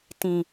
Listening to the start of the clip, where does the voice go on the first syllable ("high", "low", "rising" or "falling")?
low